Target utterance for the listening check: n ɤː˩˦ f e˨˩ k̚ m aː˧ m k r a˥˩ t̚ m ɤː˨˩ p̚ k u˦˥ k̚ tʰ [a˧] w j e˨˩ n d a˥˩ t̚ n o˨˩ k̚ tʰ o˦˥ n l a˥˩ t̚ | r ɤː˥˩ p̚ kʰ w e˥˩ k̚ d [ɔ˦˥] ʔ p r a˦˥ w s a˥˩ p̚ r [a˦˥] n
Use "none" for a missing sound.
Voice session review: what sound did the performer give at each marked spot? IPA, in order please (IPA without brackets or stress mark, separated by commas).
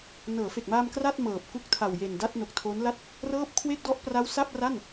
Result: a˨˩, ɔ˦˥, a˥˩